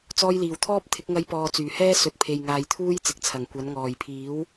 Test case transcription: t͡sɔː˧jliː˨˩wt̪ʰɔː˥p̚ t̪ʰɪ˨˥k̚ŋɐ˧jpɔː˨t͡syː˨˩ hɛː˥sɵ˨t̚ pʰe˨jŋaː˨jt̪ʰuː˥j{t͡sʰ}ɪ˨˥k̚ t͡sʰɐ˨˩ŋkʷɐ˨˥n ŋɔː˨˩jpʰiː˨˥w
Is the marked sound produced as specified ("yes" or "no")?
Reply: no